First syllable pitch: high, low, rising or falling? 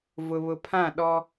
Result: low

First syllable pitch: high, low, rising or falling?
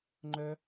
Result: high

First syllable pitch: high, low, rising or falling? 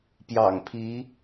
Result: low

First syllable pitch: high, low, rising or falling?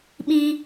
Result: high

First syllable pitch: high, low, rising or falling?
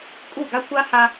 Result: falling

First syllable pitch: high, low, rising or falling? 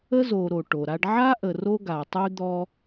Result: high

